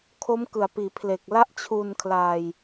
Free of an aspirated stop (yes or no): no